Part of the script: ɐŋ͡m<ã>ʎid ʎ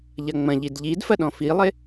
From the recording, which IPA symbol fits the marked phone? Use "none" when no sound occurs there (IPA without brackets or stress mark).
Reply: ɐ̃